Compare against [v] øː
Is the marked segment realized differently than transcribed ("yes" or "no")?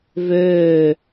no